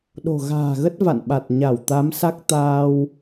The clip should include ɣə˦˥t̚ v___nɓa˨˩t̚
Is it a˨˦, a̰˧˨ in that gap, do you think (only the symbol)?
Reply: a̰˧˨